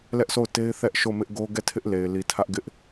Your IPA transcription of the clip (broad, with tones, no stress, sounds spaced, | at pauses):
l ɛ˦ ʔ s o˦˨ ʊ̯ t e˦ ɪ̯ θ ɛ˦ ʔ ʃ o˦˨ m ɪ˦ ʔ ɡ o˦ ɡ ɛ˦˨ tʰ ɪ˦ ʔ l e˨ ɪ̯ l i˨ tʰ ä˦ ʔ ɡ ɪ˦ ʔ